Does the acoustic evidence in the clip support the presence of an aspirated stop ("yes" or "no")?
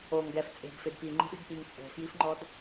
no